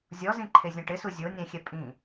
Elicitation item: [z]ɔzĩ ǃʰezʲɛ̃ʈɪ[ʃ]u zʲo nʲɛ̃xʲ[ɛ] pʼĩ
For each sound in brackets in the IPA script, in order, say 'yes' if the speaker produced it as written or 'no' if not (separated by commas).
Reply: no, no, yes